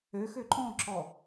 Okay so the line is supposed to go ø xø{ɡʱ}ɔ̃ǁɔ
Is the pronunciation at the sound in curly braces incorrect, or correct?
incorrect